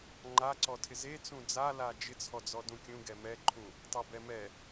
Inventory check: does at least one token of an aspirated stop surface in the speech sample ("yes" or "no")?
yes